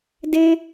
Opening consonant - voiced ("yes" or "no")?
yes